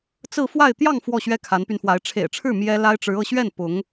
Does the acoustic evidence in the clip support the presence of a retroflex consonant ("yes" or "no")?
yes